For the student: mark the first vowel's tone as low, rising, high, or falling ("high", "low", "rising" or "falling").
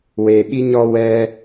low